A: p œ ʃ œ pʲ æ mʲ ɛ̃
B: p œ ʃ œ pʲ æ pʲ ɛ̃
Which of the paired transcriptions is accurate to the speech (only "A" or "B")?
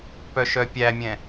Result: A